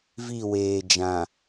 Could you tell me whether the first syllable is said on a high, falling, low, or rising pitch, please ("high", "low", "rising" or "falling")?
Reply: falling